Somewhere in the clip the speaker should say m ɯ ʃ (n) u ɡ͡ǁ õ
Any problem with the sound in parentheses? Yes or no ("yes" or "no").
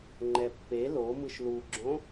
yes